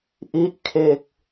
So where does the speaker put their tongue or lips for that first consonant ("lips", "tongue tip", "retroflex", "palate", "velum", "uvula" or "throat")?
throat